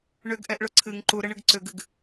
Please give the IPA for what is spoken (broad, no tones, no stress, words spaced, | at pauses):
ɳʏɡʔɛʔɭʊ ǀʰɨŋ ǃuɾəɳɨɡ ǀʏɡɨɡ